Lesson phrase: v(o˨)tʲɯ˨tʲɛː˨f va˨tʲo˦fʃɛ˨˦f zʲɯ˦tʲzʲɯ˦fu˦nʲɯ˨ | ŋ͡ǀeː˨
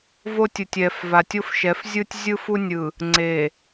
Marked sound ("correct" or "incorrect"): incorrect